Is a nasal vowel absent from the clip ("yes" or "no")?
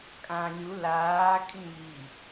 no